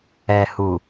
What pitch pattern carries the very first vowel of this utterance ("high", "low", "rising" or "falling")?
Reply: low